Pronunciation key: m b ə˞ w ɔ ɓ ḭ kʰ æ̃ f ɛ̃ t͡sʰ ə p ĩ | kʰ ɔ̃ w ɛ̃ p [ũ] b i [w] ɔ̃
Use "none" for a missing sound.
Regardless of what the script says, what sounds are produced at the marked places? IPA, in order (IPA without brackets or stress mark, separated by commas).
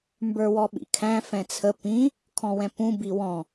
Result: ũ, w